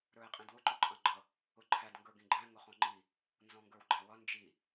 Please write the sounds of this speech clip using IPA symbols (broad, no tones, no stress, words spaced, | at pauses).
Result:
ɾə˞e̯qʼĩdwʊ ǃɔǃʼɑ̃ɡ͡ǃʌ | ʊǃʰæd ŋɡə˞ɡĩɡ͡ǃæ̃ ŋʊχɔ̃ŋ͡ǃi | nzɔ̃ŋɡə˞wɡ͡ǃæwʌ nd͡ʒi